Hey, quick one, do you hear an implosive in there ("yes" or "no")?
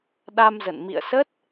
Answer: yes